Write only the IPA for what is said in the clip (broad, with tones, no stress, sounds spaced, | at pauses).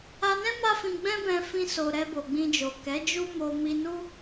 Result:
a˧ n ɛ̃˦ m a˦ f ĩ˧ ɡ͡b ɛ̃˦ b ɛ̃˧ f ĩ˦ s o˧ ɾ ɛ˧ b o˨ ɡ͡b ĩ˧ d͡ʒ o˨ k ɛ˨˦ d͡ʒ u˦ m o˧ m i˧ n u˦